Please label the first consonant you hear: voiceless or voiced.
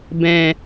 voiced